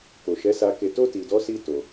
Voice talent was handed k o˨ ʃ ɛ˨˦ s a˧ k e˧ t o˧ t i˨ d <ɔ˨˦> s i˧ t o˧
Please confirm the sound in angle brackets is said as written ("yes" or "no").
yes